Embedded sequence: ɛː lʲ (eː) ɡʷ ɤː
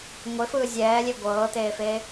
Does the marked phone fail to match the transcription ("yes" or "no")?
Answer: yes